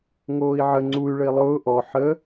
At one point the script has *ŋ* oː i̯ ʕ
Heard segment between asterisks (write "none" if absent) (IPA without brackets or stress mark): ŋ